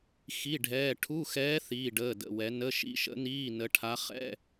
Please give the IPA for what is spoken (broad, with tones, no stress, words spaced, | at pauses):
xi˧˥˧ ɖʱɛː˧˥˧ ʈʰu˧˥˧xɛː˧˥ θiː˧˥˧ɖəː˧˥˧də̰˧˥˧wɛ˧˥ nə˧˥˧ʃḭ˧˥˧ʃə̰˧˥niː˧˥˧ nə˧˥ʈʰa˧˥ χɛ̰˧˥˧